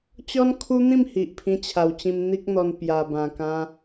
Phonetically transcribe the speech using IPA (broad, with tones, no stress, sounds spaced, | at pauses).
t͡ɕ ɔ˦ n kʰ u˦ n̪ ĩ˥˧ m h i˨ ʔ pʰ ĩ˧ t͡ɕʰ a˨˩ w t͡ɕ ĩ˧ m n̪ i˦ k̚ n̪ ɔ˧ n p j a˨˩ b ã˨˩ k ã˧